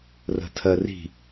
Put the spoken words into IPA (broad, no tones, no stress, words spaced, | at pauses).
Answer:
rə̤tʰɜri̤